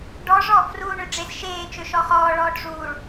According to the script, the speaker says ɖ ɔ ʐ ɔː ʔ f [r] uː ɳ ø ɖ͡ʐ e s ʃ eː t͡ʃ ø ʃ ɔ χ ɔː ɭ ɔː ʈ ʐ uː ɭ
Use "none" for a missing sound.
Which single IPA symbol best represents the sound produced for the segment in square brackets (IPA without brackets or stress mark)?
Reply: r